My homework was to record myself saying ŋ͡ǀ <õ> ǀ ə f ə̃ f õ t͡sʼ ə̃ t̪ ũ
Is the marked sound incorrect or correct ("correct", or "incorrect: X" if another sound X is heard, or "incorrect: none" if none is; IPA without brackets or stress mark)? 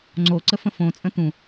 incorrect: o